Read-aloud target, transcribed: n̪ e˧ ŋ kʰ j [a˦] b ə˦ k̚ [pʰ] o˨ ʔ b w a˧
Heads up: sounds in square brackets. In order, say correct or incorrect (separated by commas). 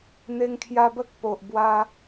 incorrect, incorrect